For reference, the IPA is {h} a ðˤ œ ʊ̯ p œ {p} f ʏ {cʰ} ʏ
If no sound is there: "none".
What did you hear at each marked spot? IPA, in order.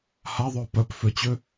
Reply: h, p, t͡ɕ

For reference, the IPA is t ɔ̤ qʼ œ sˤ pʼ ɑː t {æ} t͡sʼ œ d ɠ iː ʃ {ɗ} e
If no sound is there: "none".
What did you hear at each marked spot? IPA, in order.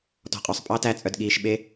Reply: æ, ɓ

